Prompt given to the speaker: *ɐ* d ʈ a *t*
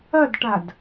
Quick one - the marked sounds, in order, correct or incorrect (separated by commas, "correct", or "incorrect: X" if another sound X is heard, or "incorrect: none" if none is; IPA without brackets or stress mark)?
correct, incorrect: d